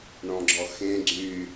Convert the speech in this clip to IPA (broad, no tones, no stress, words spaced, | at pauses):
ɳɔ̃ɡ͡ǁɔxẽ ɡ͡ǀy